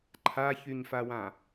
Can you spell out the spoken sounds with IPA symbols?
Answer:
ǃʰ a ç y ɲ f a w ã

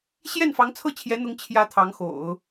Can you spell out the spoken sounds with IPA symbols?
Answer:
ɕ j ɛ˥˩ n f ɑ˧˥ ŋ t͡sʰ ɤ˥˩ t͡ɕʰ j ɛ˧˥ n̪ ʊ˧˥ ŋ t͡ɕʰ j ä˧˥ t̪ʰ ɑ˧˥ ŋ x o̰˨˩˦ ʊ̯

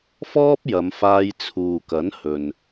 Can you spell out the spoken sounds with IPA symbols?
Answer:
f ɔː˥ p̚ j ɐ˨˧ m f aː˧ j t͡sʰ uː˨ k ɐ˨˥ n h ɵ˨ n

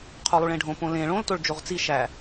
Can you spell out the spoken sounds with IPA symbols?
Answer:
qʰ u lˠ u ɭ ẽ ɖʱ õ p õ l ẽ ɭ õ l t o ɭ d͡ʒ o ʁ t͡s i ʃ æ

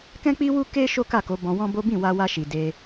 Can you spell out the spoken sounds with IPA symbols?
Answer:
k ɛ̃˦ k͡p i˦ w u˦ k e˦ ʃ o˦ k a˦˨ k o˨˦ b ɔ̃˧ w ɔ̃˦ b o˦ b ĩ˦˨ w a˧ w a˧ ʃ i˨ d e˧

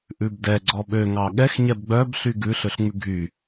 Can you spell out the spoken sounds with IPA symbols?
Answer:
ʔ ʉ b d ɛ ɡ͡ǀ ɔ ɓ ø ŋ ɑ ɠ ɛ x ɲ ɛ b ɡ͡b œ b ɬ y ɡ ʉ ɬ ø ɬ ŋ͡m ʉ ɡʱ y

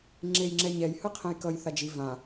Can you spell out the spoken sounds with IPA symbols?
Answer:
ŋ͡ǁ e j ŋ͡ǁ ɛ ɲ ɛ j h ɯ qʰ ẽ j k ʌ j θ a d͡ʒ i v ã

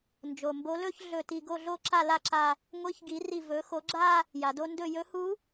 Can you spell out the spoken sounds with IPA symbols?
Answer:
n d͡ʒ o˩ m b o˧˥ l ɵ˥˧ ç ɮ ɵ˧˩ t i˧˩ ɡ o˥˩ ɮ o˥˧ ǁ a˥˩ l a˥˩ ǁ a˧˩ | ŋʷ i˧˥ ç ɡ i˩˥ r i˧˩ v ɵ˩˥ x o˩˥ ɡ͡ǁ a˥˧ | j a˩ d o˥˧ n d ɵ˥˩ j ɵ˧˥ h u˧˥

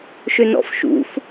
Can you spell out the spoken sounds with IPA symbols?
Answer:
ʃ ø n ɔ̰ f ʃ ṵ f

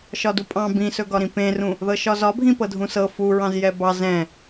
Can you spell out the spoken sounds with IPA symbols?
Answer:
ʃ ɒ d u pʼ ɑ̃ b ĩ s ɵ ɡ ɒ ɾ ĩ p ẽ r ũ | ð ɤ ʃ ɒ z ɒ bʱ ĩ p ɤ dʱ ũ s ɤ f u ɹ ɑ̃ z j ɛ b ɑ z ɛ̃

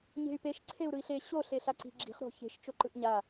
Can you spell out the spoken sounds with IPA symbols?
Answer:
ɲ e̤ y̯ p e ʃ ǀʰ e u̯ ɾ ɯ i̯ ɬ e ɕ o ɬ e ɬ a ǀ i̤ ɡ͡ǁ i̤ χ ɾ o̤ ç e̤ ʃ t͡ʃ o ǃ ɯ ʔ ɲ a

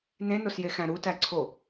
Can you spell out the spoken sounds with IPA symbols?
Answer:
n ẽ n o s j e x æ̃ ɾ u t æ ǀʰ o

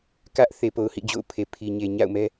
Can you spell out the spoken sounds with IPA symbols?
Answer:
k ä˦ ʔ θ e˨ p o˨ ʊ̯ h ḭ˦˨ d͡ʑ o̰˦˨ ʊ̯ pʰ e˨ pʰ i˨ ɲ e˨ ɲ a̰˦˨ ʊ̯ m ɛ˦

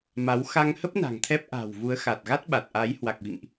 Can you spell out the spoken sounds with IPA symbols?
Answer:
m a˨˦ w x a˧ ŋ h ə˦˥ p̚ n a̤˨˩ ŋ t̪ʰ ɛ˦˥ p̚ ʔ a̤˨˩ w v u˨˦ ə̯ x a˨˩ t̚ ɣ a˦˥ t̚ ɓ a˨˩ t̚ ʔ a˨˦ j h w a˨˩ k̚ v ḭ˧˨ ŋ ʔ

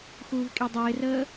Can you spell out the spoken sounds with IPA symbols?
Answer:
x uː v kʼ i dˤ ɪː r əː

